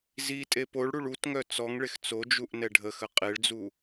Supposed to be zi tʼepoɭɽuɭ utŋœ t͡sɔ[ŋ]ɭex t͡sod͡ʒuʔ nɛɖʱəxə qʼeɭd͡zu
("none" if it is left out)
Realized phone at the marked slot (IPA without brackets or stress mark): ŋ